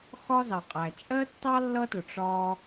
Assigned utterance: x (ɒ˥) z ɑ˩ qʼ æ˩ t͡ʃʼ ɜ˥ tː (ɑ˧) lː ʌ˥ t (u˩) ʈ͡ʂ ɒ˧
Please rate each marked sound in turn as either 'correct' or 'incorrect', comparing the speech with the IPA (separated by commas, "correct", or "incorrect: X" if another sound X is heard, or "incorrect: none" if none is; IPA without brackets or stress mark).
correct, incorrect: ɑ˥, incorrect: ʊ˩